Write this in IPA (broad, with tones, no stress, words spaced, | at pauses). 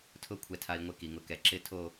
tʰʊ˥˧kʷʰɛ˧tʰa˧i̯ ŋʷɪ˥ki˩˧ŋʊ˧kɛ˧ ǁɪ˥˧tʰo˥˧